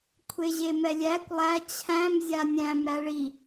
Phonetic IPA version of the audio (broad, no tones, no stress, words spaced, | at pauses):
kʷʰeʑemɛlʲækʷ lˠæ t͡ɕʰæ̃m zʲanʲæ̃mɾæ ɭi